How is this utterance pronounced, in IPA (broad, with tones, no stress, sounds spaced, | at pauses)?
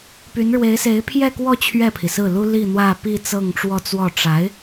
p y˧˥ n ɻ w e˧˥ ɪ̯ s e˧˥ ɪ̯ pʰ j ɛ˥˧ k w ɔ˥˧ t͡ɕʰ ɥ ɛ˥˩ pʰ i˩ s ɹ̩˥˩ l u˥ l i˥˧ n̪ w ä˥˧ p i˥˧ t͡s ɤ˥˧ ŋ ʈ͡ʂ w ɔ˥˧ t͡s w ɔ˥˩ ʈ͡ʂ a˧˥ ɪ̯